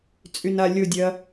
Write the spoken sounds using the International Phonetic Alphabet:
t͡sʼ y n a lʲ ʊ dʲ ɐ

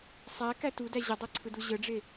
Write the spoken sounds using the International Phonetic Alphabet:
sˤ æ k æ t u d æ ʑ ə dˤ ɛ ǀʰ ɯ d u ʑ ə ɖ͡ʐ e

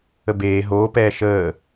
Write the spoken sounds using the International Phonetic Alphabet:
ə b eː ɦ oː p ɛː ʃ əː

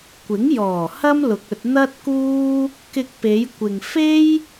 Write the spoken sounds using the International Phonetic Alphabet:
kʷ ɪ˨˥ ŋ j ɔː˨˩ h ɐ˥ m l ʊ˨ k̚ ɵ˧ t̚ n̪ ɐ˥ t̚ k uː˥ | k ɪ˧ k̚ p e˨˧ j kʷ ɪ˨ ŋ f e˥ j

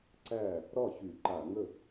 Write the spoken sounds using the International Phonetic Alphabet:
ǀ æ˥˩ | ɾ ɒ˥˩ ç y˧˩˧ ǃ a˧˩˧ ŋ ə˥˩

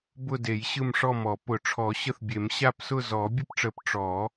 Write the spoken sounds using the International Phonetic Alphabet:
b ʊ˦˨ d e˨˩˦ j ɕ ɯ˦˨ m ʂ ɔ˦˨ m ɔ˨˩˦ p ʊ˨˩˦ ʈ͡ʂʰ ɔ˨˩˦ ɕ ə˦˨ θ bʲ e˨˩˦ m ɕ a˦˨ p s ʊ˦˨ z ɔ˨˩˦ bʲ ʊ˦˨ p ʈ͡ʂ ə˨˩˦ p ʈ͡ʂ ɔ˨˩˦

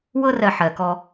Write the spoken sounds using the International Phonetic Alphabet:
w ɤ˦ r ɜ˨ ħ ɜ˨ k ɔ˦

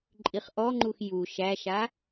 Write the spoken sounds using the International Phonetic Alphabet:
ǃʼ i χ ʔ ɔ ŋ͡ǃ u x j u ʃ æ ʃ a

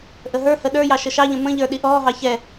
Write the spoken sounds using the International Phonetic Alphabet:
ʔ ə ɦ ə˞ h ə ɗ ə˞ j ɑ ʃ ə ʃ ɑ ʎ ə̃ m ə̃ ʎ ə˞ ɗ i ʔ ɔː ɦ ɑ ç ɛ

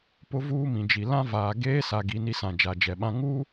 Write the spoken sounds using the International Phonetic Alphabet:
p ʊ˦ v uː˦ m ĩ˨ d͡ʒ i˨ l ã˦ v aː˨ ɡ eː˦ s a˨ ɡ i˨ n i˦ s ã˨ d͡ʒ a˨ d͡ʒ ɛ˨ ɓ ã˦ ŋ uː˦

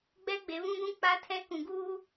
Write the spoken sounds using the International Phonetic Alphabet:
ɡ͡b ɛ˦ ɡ͡b e˨˦ β ũ˦ ɡʷ ũ˦ k͡p a˦ tʰ ɛ˦ k ũ˨ ɡ uː˦

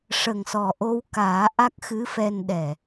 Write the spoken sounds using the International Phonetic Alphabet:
ʂ ə˨˩ ŋ s ɔ˨˩ ʔ o˧ w k aː˨˩˦ ʔ a˦˥ k̚ x ɨ˧˥ f ɛ˧ n ɗ ɛ˨˩

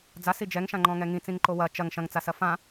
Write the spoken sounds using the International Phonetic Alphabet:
d͡z a s i d͡ʒ ɛ ŋ ʃ ã ŋ͡ǃ ɔ̃ ŋ ɛ ŋ ĩ t͡s ĩ ŋ ǃ o w ɐ t͡ʃ ɐ ŋ ʃ ɐ̃ ŋ t͡s a s ɐ f ã

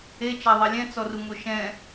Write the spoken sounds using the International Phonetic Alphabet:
e t͡ʃ a ðˤ ɛ lʲ ɛ̃ t͡s ɔ r u ŋ o ʃ ɛ̃

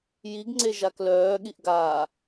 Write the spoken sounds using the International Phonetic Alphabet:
j i ɡ ŋ͡ǀ e ʒ a k l œː ɠ i ʔ ɡ a

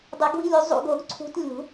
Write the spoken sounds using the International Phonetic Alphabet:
dˤ e˨˩˦ ɡ w i̤˧˥˧ lʲ u˨ zˤ ṵ˦˨ ɡ o˨˩˦ ɡ ǀʰ ṳ˨˦ t lʲ ṳ˨˩˦

